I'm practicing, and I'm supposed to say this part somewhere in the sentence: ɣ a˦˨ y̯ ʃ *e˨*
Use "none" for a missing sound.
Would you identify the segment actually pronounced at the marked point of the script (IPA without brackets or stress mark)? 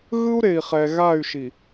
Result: i˨